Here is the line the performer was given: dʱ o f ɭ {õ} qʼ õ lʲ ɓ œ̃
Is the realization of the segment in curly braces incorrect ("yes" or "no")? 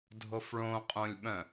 no